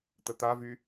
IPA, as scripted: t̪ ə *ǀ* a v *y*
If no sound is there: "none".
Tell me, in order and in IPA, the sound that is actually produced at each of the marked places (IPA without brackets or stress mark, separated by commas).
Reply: t̪, y